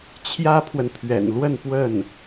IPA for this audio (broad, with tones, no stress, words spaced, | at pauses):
t͡ɕʰjä˥pʰwə˨npʰɥɛ̰˨˩nlwə˥˧n pwə˥˩n